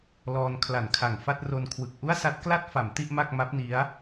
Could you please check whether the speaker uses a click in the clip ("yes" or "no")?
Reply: no